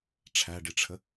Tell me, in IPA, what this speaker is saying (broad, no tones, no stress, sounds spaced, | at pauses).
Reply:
ʈ͡ʂʰ æ ɖ i ʈ͡ʂʰ ə